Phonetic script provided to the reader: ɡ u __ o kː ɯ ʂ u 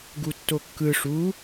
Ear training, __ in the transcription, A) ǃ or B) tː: B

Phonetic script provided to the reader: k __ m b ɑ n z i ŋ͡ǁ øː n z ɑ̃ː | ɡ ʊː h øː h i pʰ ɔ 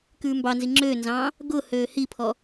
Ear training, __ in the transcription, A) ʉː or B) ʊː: A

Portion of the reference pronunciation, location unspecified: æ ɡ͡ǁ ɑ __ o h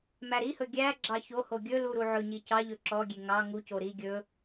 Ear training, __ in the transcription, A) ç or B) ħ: A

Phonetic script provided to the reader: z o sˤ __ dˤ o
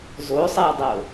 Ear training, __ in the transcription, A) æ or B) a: A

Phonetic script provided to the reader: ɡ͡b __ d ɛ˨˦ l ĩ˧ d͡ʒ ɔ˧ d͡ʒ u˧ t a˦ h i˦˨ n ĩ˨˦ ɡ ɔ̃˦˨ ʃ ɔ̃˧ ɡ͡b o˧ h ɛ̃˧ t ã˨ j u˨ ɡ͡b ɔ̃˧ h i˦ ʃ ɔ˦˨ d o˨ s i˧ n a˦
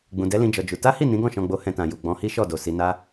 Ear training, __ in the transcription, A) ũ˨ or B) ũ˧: A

